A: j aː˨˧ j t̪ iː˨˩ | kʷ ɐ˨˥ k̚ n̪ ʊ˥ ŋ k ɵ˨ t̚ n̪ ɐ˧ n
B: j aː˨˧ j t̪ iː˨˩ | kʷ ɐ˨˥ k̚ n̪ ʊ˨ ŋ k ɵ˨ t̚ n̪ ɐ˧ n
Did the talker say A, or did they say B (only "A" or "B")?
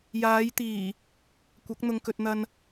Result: B